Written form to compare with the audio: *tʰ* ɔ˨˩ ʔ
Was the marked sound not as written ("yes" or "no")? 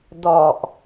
yes